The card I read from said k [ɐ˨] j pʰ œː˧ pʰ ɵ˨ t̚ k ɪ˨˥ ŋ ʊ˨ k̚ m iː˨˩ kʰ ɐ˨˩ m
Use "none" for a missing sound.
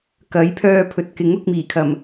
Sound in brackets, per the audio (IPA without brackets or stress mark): ɐ˨˥